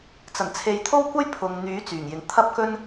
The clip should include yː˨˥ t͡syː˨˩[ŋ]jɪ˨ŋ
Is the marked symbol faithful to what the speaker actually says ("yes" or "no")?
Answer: yes